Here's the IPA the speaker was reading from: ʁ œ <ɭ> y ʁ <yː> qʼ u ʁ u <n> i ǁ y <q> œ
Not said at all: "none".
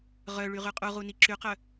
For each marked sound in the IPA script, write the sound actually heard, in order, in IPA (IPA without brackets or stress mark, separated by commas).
ɭ, y, n, q